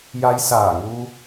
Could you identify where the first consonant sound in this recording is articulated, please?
palatal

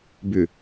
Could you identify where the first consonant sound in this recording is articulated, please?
labial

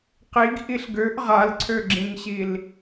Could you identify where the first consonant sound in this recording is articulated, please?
uvular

